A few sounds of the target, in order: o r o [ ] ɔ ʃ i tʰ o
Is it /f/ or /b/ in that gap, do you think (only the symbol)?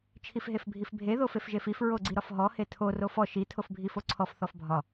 f